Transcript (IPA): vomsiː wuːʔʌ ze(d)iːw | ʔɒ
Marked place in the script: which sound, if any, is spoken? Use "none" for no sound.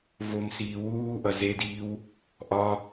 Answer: d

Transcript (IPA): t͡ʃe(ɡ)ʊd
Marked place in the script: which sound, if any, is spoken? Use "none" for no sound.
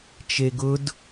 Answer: ɡ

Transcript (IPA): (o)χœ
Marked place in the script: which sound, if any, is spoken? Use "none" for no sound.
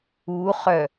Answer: u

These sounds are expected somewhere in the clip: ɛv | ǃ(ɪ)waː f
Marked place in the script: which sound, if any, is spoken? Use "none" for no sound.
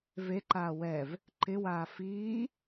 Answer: ɪ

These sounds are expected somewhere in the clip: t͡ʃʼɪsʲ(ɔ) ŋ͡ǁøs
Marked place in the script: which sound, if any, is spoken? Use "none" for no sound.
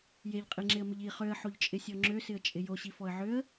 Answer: ɔ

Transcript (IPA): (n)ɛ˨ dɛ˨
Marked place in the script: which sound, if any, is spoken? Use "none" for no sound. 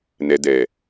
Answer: n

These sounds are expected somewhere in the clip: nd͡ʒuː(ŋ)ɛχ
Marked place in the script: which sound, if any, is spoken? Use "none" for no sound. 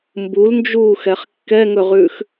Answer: x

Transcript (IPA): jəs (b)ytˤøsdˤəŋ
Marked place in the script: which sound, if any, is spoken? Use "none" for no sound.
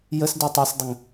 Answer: d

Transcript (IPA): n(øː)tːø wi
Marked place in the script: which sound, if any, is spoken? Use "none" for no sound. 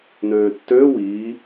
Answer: øː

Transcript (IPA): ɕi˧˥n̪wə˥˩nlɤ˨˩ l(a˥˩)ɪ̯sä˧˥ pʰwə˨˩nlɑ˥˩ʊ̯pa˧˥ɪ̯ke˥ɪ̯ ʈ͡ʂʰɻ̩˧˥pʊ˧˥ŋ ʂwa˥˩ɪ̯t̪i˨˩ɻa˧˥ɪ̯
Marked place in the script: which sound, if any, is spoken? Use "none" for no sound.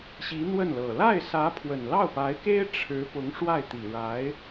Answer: a˥˩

